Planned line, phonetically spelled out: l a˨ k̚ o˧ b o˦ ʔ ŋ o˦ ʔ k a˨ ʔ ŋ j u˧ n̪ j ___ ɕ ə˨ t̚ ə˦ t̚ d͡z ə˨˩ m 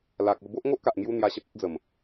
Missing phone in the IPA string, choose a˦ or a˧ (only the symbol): a˧